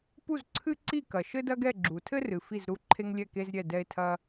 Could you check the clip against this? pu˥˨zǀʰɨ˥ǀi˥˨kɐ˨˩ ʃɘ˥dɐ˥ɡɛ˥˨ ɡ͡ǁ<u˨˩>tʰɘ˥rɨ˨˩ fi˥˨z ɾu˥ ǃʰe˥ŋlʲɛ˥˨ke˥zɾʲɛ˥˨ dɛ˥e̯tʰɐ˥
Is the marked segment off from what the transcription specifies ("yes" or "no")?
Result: no